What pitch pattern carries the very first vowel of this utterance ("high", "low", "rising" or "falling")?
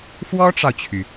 high